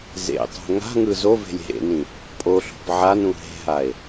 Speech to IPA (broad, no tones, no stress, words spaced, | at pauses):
zḛtˤo̤ ŋa̤ŋɯ zove̤lʲ ɦḛnĩ | pʼoɬo̤p ʕanũ ɦe̤ɦae̯